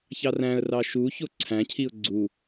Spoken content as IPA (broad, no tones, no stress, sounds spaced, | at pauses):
ç ɑ r æ̃ ə̯ r ɑ ʃ u ç o ǀʰ æ̃ cʰ i ʊ̯ ɡ͡ǀ u